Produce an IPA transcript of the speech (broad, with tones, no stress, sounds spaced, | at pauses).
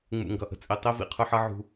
ŋ͡m ṵ˨ ŋ ɡ ʌ˨ ʔ ə̤˦ t͡sʼ i˨ tˤ i˦ v ḭ˨ qʰ ʊ˦ ħ ʌ˦ ʕ ṳ˦